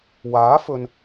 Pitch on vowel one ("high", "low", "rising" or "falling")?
rising